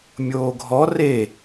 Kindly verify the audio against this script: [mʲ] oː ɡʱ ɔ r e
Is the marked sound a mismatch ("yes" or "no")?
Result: no